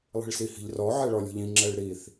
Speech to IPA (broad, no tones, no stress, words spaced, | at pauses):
lˠi̤ɭsihi̤ʎrɔ ʕɛɭɔlʲɔ̤ʎĩ ŋ͡ǁɛɭɾiθ